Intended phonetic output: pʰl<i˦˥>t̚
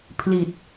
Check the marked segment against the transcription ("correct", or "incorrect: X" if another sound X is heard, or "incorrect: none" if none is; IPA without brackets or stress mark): incorrect: i˨˩